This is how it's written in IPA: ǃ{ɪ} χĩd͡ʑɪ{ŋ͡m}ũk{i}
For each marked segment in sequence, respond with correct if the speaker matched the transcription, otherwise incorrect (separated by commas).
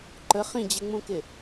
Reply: incorrect, correct, incorrect